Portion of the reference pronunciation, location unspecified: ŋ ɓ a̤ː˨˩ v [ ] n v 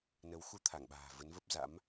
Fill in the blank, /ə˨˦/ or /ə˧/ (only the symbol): ə˨˦